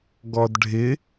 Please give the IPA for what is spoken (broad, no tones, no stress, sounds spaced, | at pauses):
ɡ ɔ d ɖʱ ɪ